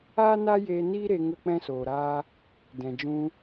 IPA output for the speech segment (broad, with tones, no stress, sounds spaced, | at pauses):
aː˦ n a˦ j eː˧ n iː˦ ɾ e˧ ŋ ə˧ k͡p ɛ̃˧ s oː˨ ɾ aː˧ | d ɛ̃˨ d͡ʒ ũ˧